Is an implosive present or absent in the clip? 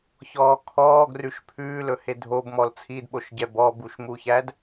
present